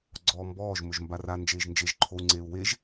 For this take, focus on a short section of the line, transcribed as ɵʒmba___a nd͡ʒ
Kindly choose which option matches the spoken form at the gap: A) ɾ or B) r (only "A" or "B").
B